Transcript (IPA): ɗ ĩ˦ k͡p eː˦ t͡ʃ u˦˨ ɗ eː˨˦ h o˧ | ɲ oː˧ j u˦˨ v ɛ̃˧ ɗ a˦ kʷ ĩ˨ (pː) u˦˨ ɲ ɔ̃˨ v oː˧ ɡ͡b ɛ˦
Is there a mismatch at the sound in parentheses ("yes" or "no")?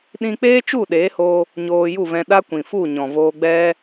yes